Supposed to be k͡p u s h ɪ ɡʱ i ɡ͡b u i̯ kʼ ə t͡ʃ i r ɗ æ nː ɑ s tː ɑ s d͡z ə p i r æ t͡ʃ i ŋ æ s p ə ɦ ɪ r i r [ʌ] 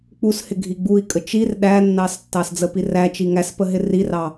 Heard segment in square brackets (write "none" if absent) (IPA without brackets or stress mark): ɑ